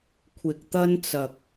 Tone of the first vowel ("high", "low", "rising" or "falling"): low